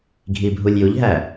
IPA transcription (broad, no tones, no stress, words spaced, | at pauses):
ɡʱibʱulʲjuʎɦæ